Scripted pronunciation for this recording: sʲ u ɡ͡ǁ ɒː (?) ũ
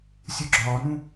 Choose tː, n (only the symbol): n